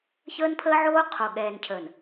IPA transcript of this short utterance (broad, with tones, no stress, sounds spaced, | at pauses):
ç əː˦ n pʰ əː˦ ʕ oː˦ qʰ o˨ ɠ ɛː˨ n cʰ əː˨ n